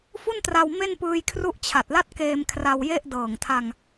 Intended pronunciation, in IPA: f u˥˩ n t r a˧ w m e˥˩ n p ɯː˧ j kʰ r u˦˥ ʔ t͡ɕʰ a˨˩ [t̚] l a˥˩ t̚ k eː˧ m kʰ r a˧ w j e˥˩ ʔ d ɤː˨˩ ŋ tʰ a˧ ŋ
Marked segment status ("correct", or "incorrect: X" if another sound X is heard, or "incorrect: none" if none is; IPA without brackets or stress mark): correct